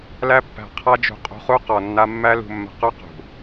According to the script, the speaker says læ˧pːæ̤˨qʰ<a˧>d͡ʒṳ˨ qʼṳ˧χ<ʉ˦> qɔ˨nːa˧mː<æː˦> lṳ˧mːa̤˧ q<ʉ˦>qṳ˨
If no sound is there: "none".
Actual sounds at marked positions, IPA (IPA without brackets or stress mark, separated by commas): a˧, u˦, æ˦, ʉ˦